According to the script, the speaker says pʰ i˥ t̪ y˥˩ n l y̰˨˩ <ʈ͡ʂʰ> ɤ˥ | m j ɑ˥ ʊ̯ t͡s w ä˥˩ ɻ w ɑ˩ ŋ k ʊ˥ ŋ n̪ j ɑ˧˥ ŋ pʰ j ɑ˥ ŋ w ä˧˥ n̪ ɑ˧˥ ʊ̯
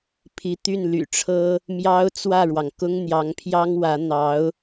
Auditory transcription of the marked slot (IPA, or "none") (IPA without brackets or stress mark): ʈ͡ʂʰ